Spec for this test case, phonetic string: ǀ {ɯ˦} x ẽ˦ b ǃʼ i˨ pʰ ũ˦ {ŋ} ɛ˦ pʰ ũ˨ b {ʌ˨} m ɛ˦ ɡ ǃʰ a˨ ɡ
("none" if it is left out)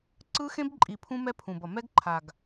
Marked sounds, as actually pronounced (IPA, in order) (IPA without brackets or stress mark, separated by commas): ɯ˦, m, ʌ˨